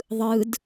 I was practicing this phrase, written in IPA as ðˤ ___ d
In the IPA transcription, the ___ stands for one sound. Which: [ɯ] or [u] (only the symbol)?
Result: ɯ